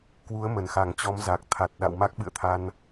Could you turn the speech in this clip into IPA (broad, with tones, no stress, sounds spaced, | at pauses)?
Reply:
k w u˨˦ ə̯ m ə˧˩ n x a˧˩ ŋ t͡ɕ ɔ˨˦ m z a˨˩ k̚ t̪ʰ a˨˩ t̚ ɗ a̰˧˨ w m a˦˥ k̚ ɓ ɨ̰˧˨ ə̯ t̪ʰ a˧ n